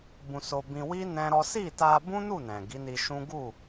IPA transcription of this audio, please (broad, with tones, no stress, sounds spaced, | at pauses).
b ũ˧ s o˧ b ĩ˧ w i˦ n ɛ̃˦ ɾ ɔ˦ s i˦˨ t a˧ b ũ˦ n u˦˨ n ɛ̃˨ ɡ i˨˦ n i˧ ʃ ũ˦ ɡ u˦˨